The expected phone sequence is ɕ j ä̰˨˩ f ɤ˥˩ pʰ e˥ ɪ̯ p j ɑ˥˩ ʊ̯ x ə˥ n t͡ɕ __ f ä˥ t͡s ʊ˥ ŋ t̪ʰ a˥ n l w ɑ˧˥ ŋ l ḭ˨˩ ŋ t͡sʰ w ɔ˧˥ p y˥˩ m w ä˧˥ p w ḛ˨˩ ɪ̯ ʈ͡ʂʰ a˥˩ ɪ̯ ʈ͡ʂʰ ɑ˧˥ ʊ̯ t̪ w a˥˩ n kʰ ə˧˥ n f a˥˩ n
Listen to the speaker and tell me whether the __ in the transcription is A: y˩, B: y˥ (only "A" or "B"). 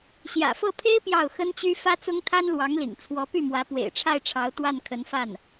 B